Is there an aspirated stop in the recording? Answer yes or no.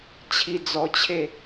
yes